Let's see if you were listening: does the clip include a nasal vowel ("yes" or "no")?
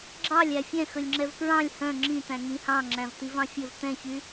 yes